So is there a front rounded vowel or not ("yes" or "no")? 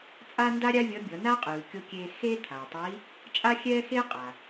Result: no